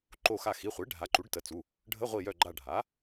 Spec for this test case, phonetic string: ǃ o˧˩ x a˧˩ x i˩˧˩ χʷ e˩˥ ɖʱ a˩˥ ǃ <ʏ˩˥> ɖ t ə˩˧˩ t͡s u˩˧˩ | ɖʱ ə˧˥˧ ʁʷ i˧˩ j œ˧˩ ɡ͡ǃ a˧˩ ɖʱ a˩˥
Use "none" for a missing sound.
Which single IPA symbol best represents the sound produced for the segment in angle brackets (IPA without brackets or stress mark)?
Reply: u˩˥